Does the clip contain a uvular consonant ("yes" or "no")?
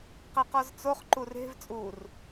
yes